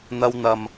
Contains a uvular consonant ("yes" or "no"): no